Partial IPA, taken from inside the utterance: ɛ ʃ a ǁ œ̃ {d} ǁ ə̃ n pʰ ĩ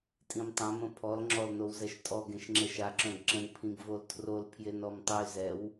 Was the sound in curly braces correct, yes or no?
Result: no